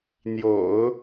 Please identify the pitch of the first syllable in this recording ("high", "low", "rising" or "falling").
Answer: low